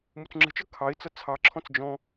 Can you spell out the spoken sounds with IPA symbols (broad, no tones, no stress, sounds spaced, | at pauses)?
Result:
m u t͡s ŋ͡ǁ ə̤ t͡ʃ ʌ kʰ ɑ ɪ̯ t͡s ʌ t͡sʰ ɑ ǁʰ ɔ̃ t͡s d͡ʒ ɔ̃